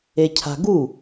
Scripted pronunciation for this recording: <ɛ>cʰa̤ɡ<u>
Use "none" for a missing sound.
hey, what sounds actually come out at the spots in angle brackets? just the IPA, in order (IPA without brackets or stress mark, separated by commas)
e, u